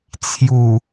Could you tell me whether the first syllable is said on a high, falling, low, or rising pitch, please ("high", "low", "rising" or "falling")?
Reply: low